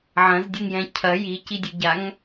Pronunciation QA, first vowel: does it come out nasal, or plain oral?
nasal